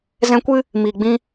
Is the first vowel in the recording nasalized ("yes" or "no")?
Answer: yes